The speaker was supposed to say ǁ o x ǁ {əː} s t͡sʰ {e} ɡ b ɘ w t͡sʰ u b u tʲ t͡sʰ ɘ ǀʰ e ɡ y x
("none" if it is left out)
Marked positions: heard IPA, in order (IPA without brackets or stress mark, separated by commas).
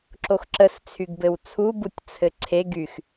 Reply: ə, y